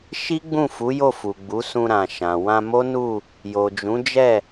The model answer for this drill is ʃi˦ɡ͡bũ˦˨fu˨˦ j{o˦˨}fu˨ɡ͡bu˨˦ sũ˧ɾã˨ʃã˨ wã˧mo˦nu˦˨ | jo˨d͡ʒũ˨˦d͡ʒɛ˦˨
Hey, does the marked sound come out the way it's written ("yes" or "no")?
yes